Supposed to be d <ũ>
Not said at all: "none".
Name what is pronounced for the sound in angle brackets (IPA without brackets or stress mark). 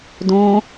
õ